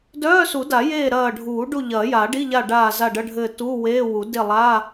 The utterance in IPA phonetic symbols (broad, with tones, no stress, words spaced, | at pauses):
dœː˧˥˧su˨˩˦da˨˩˦jeː˦˨ ɾɐː˦˨ ɖʱuː˨˩˦ɖu˦˨ ʎɐː˨˩˦ja˨˩˦ɖi˧˥˧ʎa˦˨ ɖaː˦˨za˦˨ɖɐ˧˥˧ɖʱɘː˦˨ tuː˧˥˧weː˧˥˧wu˨˩˦ de˦˨lˠa˧˥˧